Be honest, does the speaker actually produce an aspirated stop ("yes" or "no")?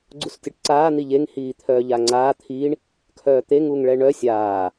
yes